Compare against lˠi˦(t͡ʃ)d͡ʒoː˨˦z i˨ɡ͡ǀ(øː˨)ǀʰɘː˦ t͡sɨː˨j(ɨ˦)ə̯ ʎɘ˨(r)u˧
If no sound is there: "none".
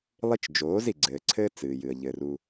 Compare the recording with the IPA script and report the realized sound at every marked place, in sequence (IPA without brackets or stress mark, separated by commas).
t͡ʃ, ɘː˨, ɨ˨, r